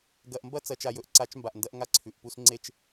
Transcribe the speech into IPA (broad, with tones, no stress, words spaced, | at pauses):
ɡɐ˨ʔmbɐ˦ t͡sɐ˨t͡ʃa˨jɵ˨ʔǀa˨˦t͡ʃ mba˨ʔndɐ˦ʔ ŋa˦ǀʰʉ˨ʔpu˦s ŋ͡ǀe˦t͡ʃ